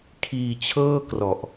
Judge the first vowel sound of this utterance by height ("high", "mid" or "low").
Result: high